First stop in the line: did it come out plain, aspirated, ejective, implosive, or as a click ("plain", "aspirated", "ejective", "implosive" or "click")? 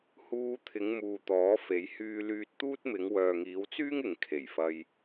aspirated